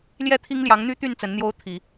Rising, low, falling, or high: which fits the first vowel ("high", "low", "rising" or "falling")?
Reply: falling